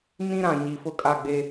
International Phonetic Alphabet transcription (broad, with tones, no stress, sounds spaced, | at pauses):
n ĩ˦ ɾ ã˨ ɲ i˨ f ʊ˦ kʼ a˦˨ ɡ͡b e˦